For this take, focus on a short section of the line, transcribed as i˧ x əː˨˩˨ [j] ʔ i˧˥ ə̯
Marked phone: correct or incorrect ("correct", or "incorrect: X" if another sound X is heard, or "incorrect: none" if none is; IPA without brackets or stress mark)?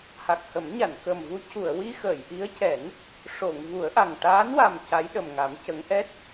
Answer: correct